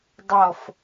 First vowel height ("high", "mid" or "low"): mid